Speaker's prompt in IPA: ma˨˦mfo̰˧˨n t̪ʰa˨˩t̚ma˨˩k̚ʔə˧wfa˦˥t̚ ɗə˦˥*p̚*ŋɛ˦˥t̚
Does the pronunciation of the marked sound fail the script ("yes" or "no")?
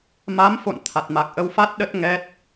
yes